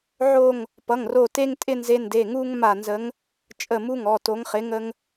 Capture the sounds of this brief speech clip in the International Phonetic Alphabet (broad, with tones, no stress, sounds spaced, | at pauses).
ʕ o˦˨ ŋ | p ʌ˩˧˩ ŋ r o˦˨ t e˥ ŋ tʼ ɪ˥ n z e˧˥ n d e˩˧˩ ŋ u˥ ŋ m a˦˨ n z ə˧˥ ŋ | t͡ʃʼ ə˦˨ m u˥ ŋ ɔ˩˧˩ t o˧˥ ŋ χ ɪ˧˥ ŋ ə˥ ŋ